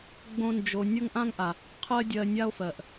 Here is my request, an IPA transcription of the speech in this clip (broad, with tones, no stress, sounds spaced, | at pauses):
ɡ͡b õ˥ n d͡ʒ o˧ nʲ ɤ˥ ŋ ʔ ã˥ ŋ ʔ a˩ | qʰ ɜ˥ dʲ ɜ˧ nʲ a˥ o̯ f ɜ˩ ʔ